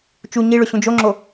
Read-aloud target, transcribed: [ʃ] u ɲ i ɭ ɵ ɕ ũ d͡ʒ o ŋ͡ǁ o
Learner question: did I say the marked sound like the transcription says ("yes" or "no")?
no